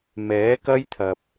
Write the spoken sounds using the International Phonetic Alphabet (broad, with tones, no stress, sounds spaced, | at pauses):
m ɛː˨˥ k ɐ˥ j t̪ʰ ɐ˨ p̚